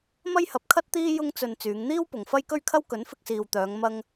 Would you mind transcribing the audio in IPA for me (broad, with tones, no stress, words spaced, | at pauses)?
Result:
mɐ˥jhɐ˨˥p̚kʰɐ˥t̚t̪iː˥ jʊ˥ŋt͡sɵ˧n t͡syː˨˧ŋn̪iː˥w pʊ˨ŋ fɐ˥jkɵ˥ɥkʰɐ˥w kɵ˨˥nfɪ˧k̚siː˨wt̪œː˨˧ŋ mɐ˥ŋ